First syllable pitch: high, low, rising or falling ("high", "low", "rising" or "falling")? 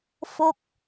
falling